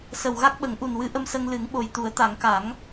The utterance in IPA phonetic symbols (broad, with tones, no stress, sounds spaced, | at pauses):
s ə˨˩ w ɣ a˦˥ k̚ ɓ ə˨˩˦ ŋ ʔ u˨˩ n w ɨ˧˥ ʔ ə˧ m s ə˧ ŋ l ɨ˨˩˦ ŋ ɓ o˨˩ j t̪ u˨˩˦ ə̯ t̪ a˨˩˦ ŋ k a˨˩˦ ŋ